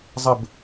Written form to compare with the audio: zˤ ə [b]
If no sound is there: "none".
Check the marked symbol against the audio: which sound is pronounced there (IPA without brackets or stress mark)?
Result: b